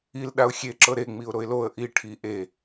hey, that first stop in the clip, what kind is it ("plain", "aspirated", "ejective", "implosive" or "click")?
implosive